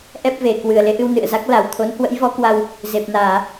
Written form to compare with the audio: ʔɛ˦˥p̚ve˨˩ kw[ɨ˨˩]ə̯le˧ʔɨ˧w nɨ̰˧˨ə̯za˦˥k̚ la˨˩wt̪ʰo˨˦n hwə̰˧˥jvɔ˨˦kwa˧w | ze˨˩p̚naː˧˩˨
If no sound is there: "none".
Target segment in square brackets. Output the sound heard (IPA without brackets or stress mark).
ɨ˨˩